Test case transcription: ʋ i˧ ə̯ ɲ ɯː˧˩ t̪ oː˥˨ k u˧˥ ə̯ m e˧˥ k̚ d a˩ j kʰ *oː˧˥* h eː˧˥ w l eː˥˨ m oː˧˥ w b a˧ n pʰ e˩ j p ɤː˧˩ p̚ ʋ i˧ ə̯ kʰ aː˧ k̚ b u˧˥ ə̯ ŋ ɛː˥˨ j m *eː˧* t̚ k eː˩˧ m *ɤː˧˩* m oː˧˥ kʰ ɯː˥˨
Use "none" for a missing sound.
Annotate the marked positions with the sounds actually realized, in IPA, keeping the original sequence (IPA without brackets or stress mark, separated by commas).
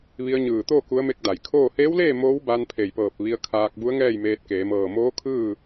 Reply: oː˥˨, eː˧, ɤː˧˩